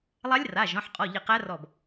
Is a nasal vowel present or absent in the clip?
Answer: present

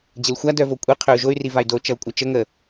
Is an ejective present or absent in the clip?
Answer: present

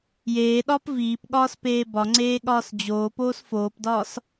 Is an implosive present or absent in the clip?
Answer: present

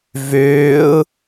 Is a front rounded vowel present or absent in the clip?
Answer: present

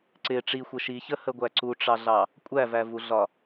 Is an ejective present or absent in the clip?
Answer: present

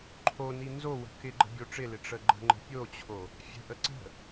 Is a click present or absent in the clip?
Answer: present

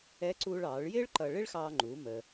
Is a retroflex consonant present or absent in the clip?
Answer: present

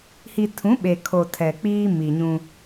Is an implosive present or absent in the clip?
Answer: present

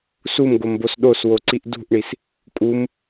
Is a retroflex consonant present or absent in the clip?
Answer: present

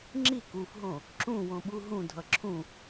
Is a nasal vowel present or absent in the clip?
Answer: present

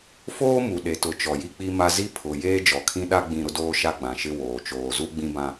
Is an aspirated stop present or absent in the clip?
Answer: present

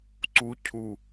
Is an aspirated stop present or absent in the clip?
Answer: present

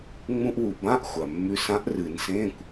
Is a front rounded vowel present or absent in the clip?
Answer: absent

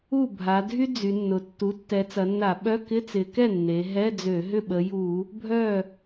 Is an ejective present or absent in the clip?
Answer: absent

